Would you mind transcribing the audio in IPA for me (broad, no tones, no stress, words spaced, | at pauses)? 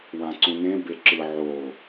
wãǀũnẽ beǁɯ ʕo